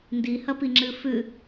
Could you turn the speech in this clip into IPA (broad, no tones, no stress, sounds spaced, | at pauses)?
n d i h ɐ p i ŋ͡ǁ ɨ f ʉ